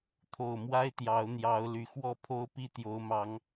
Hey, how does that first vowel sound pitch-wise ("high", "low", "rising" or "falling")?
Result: low